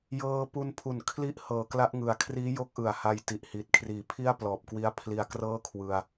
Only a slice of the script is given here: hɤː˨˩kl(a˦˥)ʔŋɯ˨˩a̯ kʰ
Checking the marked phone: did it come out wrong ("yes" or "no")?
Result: no